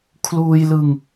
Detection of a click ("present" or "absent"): absent